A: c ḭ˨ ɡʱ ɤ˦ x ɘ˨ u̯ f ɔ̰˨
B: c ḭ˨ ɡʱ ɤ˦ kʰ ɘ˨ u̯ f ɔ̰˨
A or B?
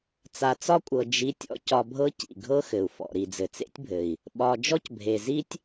A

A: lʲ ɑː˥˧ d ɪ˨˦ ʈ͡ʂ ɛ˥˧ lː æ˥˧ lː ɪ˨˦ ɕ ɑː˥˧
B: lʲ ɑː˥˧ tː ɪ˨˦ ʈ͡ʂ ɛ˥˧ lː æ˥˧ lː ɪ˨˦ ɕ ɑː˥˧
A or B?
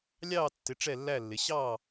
B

